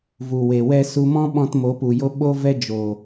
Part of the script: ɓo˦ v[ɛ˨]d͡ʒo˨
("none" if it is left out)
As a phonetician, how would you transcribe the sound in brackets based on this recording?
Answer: ɛ˦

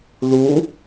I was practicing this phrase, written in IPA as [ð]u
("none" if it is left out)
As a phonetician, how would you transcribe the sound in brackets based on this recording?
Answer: ð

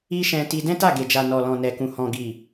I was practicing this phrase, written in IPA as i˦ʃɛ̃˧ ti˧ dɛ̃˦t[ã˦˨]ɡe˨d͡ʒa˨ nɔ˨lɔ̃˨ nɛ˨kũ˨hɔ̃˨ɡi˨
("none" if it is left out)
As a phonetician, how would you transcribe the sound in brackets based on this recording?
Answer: a˦˨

